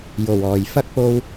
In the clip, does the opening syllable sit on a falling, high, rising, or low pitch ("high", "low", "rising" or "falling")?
low